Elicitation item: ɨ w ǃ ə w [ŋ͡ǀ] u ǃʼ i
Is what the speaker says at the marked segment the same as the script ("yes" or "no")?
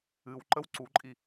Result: no